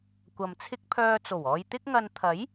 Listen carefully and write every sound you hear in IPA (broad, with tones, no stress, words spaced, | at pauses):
kʷɐ˨mt͡sʰɪ˥k̚ pʰœː˧t͡so˨˩wɔː˧j t̪ɪ˥k̚ŋɐ˧n t̪ʰɐ˨˥j